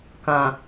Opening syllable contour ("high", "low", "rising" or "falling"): low